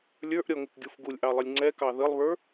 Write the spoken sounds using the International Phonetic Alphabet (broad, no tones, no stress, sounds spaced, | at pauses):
lʲ ə˞ ʔ ɾʲ ɔ ŋ ɪ k ɡʲ u f ɡ u lʲ ʔ ɑ lˠ ɪ lʲ ŋ͡ǀ ɛ k ɑ ð ə lˠ β ə˞